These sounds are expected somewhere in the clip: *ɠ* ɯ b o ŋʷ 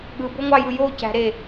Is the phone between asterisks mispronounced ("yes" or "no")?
no